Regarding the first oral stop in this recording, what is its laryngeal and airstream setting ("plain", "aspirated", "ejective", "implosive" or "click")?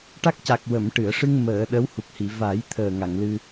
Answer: plain